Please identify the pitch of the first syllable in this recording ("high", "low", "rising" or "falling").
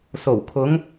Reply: low